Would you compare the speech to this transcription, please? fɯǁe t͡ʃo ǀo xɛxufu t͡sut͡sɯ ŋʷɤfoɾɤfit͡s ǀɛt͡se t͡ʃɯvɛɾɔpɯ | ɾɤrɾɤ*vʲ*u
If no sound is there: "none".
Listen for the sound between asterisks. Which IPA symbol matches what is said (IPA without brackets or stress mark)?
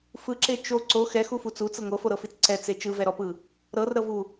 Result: v